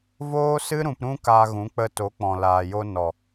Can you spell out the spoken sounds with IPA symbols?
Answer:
v oː˦ s ɨ˦ ɾ ũ˧ p ɾ ũ˦ k a˧ ɣ ũ˨˦ k͡p ə˧ t o˨˦ k͡p ɔ̃˨ l aː˨ j o˧ n ɔ˨

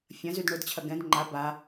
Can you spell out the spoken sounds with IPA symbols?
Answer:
fʲ ɐ̃ z y d ɳ ʊ d t͡ɕʰ ɐ ɡ ɛ̃ d ŋ͡ǃ a b a

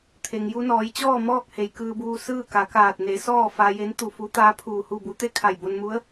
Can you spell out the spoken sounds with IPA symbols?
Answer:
t̪ʰ e˩ ŋ j u˧ n ɔː˩˧ j t͡ɕ ɔː˥˨ m ɔː˥˨ k̚ h e˩ j k ɯː˧ b uː˧ s ɯː˥˨ k a˩˧ k aː˧˩ t̚ n e˩˧ s ɔː˥˨ f a˧ j e˧˥ n t̪ u˧˩ f u˧˥ t̪ aː˧˥ pʰ uː˧˩ h u˥˨ b u˧˥ t̪ e˥˨ kʰ a˧˩ j b o˧ n m u˧˥ ə̯

